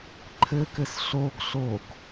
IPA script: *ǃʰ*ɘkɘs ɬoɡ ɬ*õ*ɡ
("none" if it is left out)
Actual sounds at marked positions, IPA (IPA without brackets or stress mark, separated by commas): ǃʰ, o